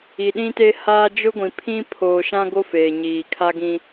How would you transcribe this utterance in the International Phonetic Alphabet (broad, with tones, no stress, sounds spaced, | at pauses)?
i˨ ɗ ĩ˦ t e˦ h aː˦ d͡ʒ ʊ˦ ɡʷ ĩ˨ pʰ ĩ˦ pʰ oː˨ ʃ ã˦ ɡ o˦ f eː˨ ɲ iː˨ kʰ a˦ ɡ ĩ˦